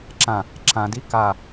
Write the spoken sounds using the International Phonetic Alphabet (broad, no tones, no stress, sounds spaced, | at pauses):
ǁ ã | ǁ ã d i k a